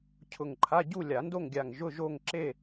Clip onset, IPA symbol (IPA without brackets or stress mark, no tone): cʰ